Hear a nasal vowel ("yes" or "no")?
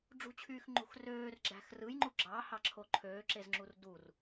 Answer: no